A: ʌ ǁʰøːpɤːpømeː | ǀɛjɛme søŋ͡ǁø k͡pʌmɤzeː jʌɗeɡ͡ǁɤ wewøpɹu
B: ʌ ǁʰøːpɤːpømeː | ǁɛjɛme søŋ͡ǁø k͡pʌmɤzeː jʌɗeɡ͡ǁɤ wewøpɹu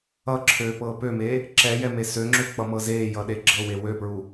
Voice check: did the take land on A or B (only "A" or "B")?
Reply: B